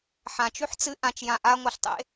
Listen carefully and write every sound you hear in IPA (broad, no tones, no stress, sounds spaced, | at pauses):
ħ ã t͡ʃ ʉ ħ t͡s ɨ ʔ ã t͡ʃ j ã ʔ a ŋʷ a ɬ tˤ ḛ